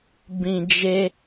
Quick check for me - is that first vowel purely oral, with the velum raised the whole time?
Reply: no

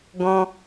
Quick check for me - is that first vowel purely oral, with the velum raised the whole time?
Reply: no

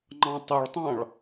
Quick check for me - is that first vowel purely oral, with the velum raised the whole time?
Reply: no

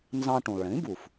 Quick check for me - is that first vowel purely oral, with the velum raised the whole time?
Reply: no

